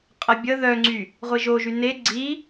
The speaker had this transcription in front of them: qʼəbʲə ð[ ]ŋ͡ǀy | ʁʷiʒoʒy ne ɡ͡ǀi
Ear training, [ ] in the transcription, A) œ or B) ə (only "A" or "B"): A